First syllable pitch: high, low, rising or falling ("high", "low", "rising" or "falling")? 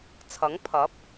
rising